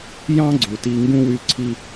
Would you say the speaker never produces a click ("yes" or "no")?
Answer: no